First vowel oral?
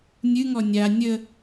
yes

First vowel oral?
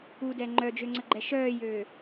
yes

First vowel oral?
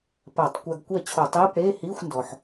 yes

